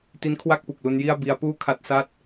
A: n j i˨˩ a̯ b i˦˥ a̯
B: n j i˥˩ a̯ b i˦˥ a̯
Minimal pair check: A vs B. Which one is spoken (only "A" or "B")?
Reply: B